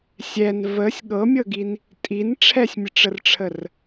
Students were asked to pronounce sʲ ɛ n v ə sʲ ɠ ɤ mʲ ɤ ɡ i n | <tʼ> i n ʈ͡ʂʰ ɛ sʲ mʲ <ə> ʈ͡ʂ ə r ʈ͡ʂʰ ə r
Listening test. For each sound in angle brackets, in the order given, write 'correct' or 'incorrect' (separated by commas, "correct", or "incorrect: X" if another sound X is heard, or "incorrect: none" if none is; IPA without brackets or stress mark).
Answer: correct, correct